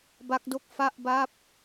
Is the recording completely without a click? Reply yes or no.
yes